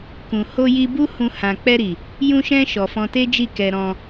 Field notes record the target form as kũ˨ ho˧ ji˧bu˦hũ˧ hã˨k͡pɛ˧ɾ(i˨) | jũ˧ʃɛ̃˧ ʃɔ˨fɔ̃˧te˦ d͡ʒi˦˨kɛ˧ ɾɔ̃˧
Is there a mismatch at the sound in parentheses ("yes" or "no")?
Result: no